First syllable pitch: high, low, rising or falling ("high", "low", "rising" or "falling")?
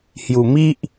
low